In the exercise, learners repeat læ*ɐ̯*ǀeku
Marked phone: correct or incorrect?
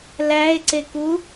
incorrect